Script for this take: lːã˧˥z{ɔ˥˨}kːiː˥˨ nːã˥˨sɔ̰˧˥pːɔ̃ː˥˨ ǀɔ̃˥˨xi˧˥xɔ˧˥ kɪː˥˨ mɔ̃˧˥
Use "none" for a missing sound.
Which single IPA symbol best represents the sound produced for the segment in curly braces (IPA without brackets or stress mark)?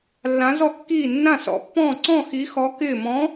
ɔ˥˨